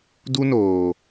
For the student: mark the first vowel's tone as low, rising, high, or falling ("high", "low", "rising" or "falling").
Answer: high